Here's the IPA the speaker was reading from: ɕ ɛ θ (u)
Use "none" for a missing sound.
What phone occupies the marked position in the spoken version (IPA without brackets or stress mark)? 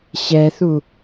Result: u